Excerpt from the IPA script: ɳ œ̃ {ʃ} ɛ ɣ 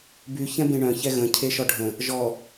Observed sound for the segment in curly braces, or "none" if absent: ç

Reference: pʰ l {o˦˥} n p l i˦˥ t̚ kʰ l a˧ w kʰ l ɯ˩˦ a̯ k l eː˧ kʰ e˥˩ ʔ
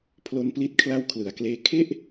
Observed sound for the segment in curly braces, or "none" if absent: o˦˥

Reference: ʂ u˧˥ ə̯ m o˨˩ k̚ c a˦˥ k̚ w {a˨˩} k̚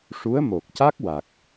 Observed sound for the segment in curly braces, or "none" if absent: a˨˩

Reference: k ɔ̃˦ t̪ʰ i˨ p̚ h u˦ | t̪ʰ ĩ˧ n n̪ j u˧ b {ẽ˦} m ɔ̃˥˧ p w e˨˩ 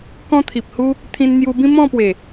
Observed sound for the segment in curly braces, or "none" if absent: ĩ˦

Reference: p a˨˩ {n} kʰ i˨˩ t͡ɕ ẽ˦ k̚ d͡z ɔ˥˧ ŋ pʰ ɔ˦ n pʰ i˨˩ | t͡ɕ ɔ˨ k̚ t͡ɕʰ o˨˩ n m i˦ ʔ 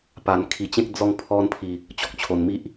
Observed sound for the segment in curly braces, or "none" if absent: n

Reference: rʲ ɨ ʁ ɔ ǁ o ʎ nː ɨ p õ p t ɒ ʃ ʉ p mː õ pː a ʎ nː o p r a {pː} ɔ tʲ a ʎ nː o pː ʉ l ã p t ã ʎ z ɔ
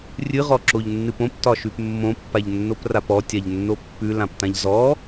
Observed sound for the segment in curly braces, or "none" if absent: p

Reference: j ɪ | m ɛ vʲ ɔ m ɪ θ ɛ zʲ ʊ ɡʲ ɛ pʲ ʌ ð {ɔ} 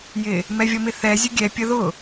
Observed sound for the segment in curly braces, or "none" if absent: ʊ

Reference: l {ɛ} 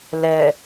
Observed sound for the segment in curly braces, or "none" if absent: ɛ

